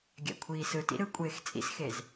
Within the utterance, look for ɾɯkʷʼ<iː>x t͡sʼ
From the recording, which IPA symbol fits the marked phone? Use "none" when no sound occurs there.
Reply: eː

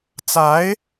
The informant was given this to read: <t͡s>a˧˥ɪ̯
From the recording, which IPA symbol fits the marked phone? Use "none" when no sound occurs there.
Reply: t͡s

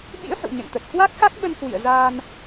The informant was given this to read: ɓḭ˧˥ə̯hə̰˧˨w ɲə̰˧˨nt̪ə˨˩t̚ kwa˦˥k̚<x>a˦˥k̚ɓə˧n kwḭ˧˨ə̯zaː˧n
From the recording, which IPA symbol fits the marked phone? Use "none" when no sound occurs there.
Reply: x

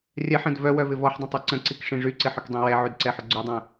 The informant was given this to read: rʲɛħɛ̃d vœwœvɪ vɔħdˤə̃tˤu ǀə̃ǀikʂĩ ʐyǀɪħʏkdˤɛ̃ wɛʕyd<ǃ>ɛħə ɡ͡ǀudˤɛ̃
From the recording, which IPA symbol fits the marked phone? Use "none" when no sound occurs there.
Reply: ǀ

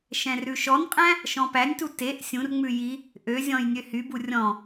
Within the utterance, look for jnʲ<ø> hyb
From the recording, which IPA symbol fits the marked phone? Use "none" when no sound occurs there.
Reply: ø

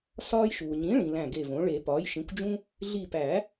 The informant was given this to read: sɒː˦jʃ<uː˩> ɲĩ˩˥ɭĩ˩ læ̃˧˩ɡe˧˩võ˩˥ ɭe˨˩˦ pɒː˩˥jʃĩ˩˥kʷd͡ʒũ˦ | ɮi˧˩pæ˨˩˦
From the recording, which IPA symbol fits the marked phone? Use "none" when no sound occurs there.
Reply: uː˩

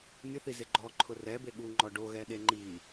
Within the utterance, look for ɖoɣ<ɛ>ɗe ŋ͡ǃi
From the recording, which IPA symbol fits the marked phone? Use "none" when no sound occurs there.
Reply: ɛ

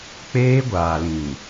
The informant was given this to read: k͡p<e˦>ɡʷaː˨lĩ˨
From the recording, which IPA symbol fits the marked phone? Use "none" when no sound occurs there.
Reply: eː˦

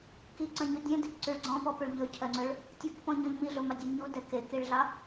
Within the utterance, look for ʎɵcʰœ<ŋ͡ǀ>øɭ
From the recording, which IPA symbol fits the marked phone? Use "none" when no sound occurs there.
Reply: ŋ͡ǀ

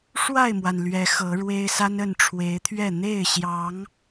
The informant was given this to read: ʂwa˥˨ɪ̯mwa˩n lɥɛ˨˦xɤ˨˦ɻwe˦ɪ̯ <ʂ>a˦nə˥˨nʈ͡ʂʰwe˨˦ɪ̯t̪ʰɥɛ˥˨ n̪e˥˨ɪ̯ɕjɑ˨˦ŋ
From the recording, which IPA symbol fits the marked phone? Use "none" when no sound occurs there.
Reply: s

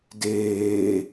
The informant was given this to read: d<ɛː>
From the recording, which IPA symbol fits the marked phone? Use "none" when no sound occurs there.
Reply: eː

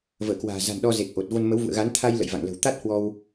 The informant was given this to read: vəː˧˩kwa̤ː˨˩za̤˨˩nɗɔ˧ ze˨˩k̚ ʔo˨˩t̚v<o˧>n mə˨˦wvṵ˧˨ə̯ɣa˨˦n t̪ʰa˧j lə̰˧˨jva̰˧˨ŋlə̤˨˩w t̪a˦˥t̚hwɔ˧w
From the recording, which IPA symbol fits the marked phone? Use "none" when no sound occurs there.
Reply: o˧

